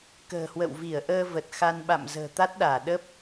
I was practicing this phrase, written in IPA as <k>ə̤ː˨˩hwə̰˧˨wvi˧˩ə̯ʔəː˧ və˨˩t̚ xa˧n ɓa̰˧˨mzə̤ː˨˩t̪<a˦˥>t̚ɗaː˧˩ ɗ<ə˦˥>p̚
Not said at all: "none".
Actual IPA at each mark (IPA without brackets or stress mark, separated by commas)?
k, a˦˥, ə˦˥